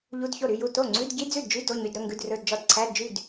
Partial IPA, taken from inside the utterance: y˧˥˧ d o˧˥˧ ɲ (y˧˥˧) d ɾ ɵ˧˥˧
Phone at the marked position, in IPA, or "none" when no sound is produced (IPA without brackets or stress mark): y˧˥˧